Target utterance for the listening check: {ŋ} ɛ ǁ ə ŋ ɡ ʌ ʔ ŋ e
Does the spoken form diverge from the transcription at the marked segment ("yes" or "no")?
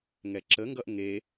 no